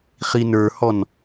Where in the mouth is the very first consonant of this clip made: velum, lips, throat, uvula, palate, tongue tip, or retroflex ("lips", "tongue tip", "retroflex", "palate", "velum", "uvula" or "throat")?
uvula